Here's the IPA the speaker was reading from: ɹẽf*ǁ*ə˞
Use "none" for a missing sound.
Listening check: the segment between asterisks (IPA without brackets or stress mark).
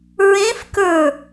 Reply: k